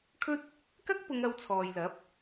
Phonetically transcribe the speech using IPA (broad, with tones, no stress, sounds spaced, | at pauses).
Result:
kʰ ɵ˥ t̚ | k ɐ˥ k̚ p ʊ˨˧ ŋ ɐ˧ w t͡sʰ ɔː˨ j l ɐ˨˥ p̚